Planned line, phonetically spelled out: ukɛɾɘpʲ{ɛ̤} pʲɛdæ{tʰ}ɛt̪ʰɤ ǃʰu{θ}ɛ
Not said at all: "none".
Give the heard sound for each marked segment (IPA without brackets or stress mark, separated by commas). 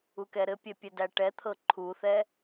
ɛ, ʈ, θ